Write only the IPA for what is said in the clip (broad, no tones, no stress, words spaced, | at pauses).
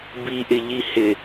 biʔɪʎi hɪ